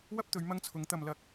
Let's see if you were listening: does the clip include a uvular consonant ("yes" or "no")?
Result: no